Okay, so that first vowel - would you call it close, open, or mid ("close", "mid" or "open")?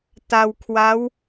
open